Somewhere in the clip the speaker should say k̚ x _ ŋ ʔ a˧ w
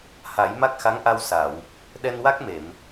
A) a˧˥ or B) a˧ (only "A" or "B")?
A